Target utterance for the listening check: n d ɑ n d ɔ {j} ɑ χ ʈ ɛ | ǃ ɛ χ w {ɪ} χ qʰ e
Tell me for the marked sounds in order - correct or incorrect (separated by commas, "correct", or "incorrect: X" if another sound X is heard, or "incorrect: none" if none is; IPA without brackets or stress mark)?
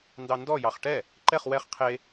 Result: correct, incorrect: ɛ